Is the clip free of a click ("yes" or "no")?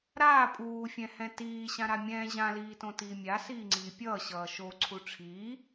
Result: no